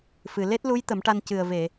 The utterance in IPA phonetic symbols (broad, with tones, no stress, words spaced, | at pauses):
fɨ˨˩ le˦˥t̚lu˧˥j t̪ə˨˩˦mʈa˧n cɨ˨˩ə̯ve˨˩˨